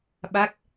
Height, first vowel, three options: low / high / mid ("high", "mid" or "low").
low